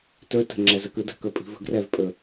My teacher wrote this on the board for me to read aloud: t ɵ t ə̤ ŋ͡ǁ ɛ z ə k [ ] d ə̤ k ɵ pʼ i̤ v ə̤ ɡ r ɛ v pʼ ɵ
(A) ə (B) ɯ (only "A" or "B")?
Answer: B